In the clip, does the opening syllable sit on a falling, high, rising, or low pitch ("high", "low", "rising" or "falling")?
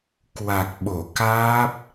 low